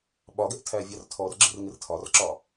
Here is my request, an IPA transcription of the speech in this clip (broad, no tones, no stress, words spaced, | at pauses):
ɓɒɡɛʔ tʰævʲɑrtʰɔrɡ͡ǁɪr ŋɪrtʰɒrǁɒ